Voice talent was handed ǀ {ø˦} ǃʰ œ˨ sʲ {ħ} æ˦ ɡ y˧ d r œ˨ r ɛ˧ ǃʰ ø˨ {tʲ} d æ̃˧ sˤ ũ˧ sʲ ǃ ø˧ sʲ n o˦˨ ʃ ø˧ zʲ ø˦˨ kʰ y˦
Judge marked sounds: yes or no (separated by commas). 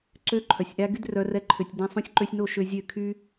yes, no, yes